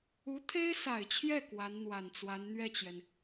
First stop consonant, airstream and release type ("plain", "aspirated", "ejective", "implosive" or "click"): aspirated